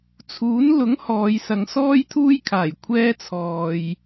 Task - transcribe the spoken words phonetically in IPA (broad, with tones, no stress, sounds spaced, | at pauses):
t͡sʰ uː˨˥ n l ʊ˨˥ ŋ h ɔː˨˧ j s ɐ˨˧ ŋ s ɔː˥ j t̪ʰ uː˥ j kʰ aː˨˩ j kʷʰ ɛː˥ t͡sʰ ɔː˨ j